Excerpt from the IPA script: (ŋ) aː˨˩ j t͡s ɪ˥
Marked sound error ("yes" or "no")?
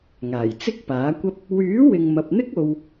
no